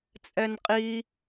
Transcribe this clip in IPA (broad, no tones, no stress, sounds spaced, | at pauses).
t͡sʼ ɛ n qʼ i